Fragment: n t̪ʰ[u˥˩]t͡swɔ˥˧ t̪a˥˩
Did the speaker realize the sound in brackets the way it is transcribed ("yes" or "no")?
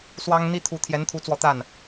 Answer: no